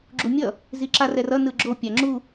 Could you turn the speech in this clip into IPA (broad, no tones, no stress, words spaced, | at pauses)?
ɡ͡ǁumʲʌ | ziǁarɛrʌ nɯɡ͡ǁo pʲaŋ͡ǁu